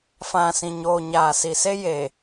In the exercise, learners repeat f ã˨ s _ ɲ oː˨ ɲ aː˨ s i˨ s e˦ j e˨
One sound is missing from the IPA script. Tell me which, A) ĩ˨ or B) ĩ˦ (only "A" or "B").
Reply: A